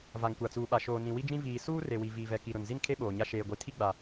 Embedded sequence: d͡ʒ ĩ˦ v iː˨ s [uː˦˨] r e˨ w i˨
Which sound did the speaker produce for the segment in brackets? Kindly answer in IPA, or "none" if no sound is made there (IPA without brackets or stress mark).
uː˦